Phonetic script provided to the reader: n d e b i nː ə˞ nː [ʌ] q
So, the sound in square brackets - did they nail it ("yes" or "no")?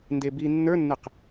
no